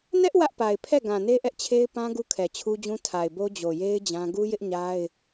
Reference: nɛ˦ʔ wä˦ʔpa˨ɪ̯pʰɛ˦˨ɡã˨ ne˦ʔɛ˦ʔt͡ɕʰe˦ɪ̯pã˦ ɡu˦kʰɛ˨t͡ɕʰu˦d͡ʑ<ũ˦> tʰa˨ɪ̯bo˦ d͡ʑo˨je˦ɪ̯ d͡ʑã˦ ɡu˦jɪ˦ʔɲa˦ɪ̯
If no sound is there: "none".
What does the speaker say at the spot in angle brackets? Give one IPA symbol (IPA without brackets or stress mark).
ũ˦